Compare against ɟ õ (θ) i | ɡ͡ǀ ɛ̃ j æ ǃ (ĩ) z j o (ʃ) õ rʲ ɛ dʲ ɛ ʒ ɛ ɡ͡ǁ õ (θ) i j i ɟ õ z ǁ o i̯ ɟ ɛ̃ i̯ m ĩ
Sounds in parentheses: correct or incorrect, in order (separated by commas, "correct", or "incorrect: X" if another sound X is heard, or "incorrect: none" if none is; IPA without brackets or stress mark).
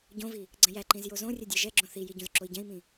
incorrect: v, correct, incorrect: z, correct